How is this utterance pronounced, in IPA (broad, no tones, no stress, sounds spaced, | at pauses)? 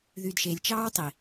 ð y d ʃ e lʲ t͡ʃ ɑː w tˤ i